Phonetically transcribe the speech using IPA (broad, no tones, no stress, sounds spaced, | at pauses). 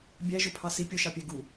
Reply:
bʲ æ ʒ ʊ pʰ ɑ s i pʲ ʊ ʃ ɑ pʲ ɛ ɡ u